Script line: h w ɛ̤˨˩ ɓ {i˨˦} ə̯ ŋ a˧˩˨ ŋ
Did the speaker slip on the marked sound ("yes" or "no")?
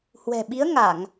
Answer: no